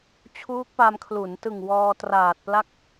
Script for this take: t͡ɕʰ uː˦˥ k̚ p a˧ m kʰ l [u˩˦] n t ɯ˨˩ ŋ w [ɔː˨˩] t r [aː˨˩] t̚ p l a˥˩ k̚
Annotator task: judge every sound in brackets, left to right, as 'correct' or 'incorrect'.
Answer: correct, incorrect: ɔː˧, correct

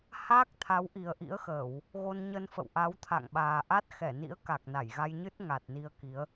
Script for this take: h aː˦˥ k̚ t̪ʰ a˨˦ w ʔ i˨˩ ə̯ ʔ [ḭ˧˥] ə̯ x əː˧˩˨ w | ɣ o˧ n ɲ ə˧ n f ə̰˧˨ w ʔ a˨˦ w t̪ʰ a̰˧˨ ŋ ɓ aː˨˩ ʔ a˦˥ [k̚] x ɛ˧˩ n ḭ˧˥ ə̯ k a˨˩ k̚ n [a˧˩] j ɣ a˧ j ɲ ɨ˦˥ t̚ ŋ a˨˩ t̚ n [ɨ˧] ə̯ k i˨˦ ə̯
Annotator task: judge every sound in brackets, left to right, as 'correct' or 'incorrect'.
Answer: correct, incorrect: t̚, correct, incorrect: i˧

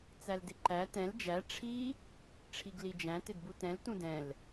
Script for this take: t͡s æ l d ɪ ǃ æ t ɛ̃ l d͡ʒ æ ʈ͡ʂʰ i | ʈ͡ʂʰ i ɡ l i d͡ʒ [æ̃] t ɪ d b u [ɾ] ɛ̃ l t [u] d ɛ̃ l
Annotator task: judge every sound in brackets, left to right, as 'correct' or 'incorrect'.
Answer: correct, incorrect: t, incorrect: ũ

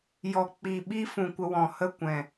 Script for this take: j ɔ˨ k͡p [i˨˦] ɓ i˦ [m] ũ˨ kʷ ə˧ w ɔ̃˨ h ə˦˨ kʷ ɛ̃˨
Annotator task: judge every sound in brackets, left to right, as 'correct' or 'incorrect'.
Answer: incorrect: i˨, incorrect: f

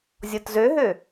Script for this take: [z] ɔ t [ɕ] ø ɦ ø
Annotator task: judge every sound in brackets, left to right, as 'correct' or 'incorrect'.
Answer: incorrect: zʲ, incorrect: z

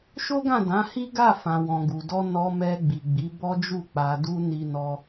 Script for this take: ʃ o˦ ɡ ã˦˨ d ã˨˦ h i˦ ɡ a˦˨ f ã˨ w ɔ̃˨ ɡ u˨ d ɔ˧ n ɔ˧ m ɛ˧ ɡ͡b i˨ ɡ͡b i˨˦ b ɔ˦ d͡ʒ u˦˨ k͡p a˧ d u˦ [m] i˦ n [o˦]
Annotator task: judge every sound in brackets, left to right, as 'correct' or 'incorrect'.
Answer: incorrect: n, incorrect: ɔ˦

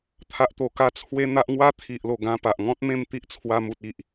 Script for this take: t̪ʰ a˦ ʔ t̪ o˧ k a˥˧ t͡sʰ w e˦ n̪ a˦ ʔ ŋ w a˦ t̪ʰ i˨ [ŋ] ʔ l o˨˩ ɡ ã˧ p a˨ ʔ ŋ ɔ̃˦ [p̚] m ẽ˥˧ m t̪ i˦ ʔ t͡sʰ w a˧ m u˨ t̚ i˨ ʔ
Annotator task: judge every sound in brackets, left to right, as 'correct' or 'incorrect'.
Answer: incorrect: none, incorrect: t̚

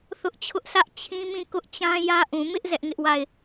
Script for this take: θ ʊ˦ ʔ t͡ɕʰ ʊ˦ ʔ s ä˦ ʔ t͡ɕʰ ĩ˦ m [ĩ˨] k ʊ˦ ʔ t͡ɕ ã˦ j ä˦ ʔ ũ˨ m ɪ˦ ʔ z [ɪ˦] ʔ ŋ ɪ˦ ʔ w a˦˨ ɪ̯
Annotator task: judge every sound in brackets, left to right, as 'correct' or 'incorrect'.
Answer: incorrect: ĩ˦˨, incorrect: ɛ˦

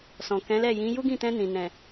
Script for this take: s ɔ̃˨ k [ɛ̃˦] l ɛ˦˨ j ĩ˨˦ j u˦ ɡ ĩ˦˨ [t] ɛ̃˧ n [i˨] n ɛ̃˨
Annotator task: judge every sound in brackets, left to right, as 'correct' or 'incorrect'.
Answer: incorrect: ɛ̃˨˦, correct, incorrect: ĩ˨

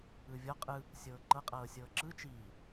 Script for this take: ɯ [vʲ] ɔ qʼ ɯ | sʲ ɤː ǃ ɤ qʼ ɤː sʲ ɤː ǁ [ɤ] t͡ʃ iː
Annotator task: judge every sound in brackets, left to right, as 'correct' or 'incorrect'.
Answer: correct, incorrect: ɯ

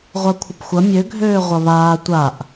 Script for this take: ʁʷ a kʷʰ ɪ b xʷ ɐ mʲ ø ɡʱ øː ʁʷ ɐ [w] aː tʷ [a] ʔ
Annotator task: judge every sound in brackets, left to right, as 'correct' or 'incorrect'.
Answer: incorrect: β, correct

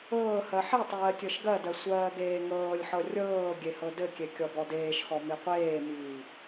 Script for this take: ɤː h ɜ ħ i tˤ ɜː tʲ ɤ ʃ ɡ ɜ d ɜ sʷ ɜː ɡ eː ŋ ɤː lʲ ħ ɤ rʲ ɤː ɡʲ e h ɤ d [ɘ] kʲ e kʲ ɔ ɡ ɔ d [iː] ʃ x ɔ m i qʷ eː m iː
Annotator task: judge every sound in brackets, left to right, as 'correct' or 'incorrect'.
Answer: correct, incorrect: eː

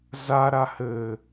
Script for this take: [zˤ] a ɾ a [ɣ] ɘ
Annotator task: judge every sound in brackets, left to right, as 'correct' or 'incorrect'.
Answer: incorrect: z, incorrect: h

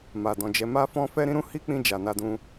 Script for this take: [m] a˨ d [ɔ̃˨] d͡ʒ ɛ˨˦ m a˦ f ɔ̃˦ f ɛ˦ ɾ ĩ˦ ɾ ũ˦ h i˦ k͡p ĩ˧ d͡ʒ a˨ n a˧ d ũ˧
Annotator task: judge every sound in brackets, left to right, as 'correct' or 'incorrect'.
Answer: correct, correct

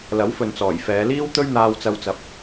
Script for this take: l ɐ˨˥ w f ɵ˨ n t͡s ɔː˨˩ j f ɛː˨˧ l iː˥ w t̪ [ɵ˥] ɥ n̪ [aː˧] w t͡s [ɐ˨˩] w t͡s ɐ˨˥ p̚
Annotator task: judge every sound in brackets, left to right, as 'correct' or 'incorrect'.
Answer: correct, correct, incorrect: ɐ˧

